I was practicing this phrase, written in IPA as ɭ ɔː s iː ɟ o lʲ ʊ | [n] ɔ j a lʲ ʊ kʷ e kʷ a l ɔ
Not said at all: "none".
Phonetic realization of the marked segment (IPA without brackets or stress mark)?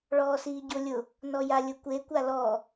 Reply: n